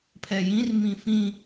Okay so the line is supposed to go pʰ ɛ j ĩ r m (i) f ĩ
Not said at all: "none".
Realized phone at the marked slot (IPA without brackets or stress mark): ĩ